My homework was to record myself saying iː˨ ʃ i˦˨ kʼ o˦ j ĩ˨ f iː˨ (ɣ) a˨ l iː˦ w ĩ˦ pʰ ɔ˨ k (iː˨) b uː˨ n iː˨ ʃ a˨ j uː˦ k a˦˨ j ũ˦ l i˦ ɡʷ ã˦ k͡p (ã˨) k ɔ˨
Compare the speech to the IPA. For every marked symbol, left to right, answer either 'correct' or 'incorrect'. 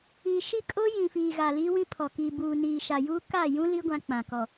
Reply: correct, correct, correct

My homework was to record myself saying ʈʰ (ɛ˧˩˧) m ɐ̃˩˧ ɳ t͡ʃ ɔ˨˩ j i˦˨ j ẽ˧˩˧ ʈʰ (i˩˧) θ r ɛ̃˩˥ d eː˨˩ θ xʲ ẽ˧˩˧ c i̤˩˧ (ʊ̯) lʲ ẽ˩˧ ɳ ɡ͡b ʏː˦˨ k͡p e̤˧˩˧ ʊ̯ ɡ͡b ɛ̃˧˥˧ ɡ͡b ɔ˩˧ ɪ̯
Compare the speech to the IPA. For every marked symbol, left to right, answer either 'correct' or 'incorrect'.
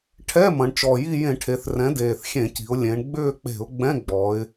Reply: incorrect: ɛ˧˥˧, incorrect: e˩˧, correct

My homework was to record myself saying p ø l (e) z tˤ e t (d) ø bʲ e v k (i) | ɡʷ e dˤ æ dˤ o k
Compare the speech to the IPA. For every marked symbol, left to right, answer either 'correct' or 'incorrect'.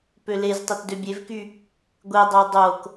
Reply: correct, correct, incorrect: y

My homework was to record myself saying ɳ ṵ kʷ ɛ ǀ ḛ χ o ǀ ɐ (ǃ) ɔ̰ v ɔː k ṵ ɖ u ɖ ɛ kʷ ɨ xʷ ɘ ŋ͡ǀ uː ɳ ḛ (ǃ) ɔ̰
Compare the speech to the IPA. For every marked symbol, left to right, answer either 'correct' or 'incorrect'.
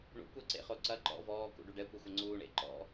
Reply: correct, correct

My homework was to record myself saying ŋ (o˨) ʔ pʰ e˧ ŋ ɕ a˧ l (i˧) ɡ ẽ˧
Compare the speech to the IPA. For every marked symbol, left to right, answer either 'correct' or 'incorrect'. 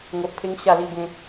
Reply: correct, correct

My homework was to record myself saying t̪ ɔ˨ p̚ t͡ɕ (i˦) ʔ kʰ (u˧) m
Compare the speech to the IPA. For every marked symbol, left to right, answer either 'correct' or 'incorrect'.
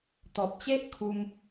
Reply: incorrect: e˦, correct

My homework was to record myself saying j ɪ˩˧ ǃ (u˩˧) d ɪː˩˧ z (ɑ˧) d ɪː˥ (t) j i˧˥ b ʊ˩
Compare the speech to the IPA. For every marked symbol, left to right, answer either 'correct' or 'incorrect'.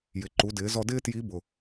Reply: correct, incorrect: ɔ˧, correct

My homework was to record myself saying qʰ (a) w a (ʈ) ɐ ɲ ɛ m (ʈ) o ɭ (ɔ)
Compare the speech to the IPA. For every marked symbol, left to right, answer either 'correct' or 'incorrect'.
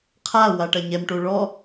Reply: correct, correct, correct, correct

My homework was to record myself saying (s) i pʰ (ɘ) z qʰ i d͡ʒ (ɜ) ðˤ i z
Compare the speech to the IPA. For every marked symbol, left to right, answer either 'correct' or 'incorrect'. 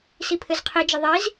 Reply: correct, correct, correct

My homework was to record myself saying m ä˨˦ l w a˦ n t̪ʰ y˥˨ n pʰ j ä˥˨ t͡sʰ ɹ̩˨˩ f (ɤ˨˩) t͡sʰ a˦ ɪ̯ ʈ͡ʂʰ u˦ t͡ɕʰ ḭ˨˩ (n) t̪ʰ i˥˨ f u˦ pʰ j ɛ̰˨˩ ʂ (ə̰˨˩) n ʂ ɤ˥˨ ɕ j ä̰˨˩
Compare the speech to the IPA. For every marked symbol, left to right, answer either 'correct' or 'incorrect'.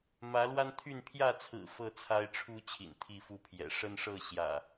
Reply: incorrect: ɤ˥˨, correct, incorrect: ə˦

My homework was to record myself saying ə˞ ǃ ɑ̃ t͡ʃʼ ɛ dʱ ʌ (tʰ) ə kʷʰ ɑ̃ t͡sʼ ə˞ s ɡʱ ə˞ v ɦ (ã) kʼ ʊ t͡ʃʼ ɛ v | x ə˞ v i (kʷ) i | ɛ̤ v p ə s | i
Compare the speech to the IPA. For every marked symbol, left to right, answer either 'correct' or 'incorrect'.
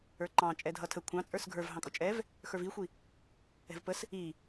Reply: correct, incorrect: ɑ̃, incorrect: xʷ

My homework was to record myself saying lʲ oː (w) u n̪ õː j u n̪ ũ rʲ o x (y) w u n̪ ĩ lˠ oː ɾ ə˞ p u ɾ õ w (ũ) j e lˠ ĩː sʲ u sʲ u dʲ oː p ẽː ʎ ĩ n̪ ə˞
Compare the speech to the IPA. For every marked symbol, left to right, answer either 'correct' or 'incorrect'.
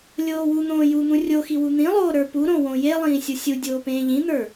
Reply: correct, incorrect: i, incorrect: õ

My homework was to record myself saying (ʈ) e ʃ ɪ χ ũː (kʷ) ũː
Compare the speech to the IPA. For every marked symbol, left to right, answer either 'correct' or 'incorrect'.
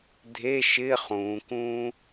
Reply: incorrect: dʱ, incorrect: k

